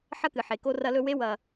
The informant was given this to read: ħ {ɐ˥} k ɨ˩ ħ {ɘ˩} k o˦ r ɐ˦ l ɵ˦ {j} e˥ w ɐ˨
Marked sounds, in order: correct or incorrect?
correct, incorrect: e˩, incorrect: w

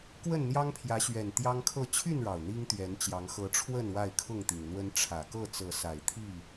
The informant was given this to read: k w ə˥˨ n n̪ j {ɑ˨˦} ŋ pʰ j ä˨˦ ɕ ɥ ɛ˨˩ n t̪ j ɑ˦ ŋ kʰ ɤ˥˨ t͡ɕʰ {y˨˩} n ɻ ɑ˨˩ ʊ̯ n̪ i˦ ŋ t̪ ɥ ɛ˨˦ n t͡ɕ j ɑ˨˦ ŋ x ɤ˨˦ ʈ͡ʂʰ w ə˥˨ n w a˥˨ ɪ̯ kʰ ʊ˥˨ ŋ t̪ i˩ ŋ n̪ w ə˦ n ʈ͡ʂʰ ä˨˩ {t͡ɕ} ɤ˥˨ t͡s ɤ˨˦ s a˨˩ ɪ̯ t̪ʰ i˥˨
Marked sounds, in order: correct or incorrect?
incorrect: ɑ˦, incorrect: y˥˨, incorrect: k

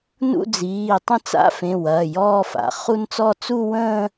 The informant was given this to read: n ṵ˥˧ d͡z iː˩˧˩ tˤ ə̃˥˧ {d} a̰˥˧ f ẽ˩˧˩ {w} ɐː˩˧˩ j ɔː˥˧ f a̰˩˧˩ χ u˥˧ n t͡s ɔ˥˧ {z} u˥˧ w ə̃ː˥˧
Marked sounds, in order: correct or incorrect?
incorrect: t͡s, correct, incorrect: t͡s

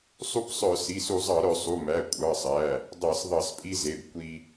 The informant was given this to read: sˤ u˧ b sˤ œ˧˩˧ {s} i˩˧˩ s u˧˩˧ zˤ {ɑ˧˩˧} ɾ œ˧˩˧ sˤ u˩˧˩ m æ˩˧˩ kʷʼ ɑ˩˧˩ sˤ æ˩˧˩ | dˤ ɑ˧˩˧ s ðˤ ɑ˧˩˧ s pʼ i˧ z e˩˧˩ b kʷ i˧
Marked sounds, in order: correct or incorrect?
correct, correct

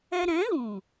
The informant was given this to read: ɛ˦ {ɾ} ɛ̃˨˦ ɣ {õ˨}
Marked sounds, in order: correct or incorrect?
correct, incorrect: ũ˨

